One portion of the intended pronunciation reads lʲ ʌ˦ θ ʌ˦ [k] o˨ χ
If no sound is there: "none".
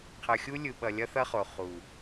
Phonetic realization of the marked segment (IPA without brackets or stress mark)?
χ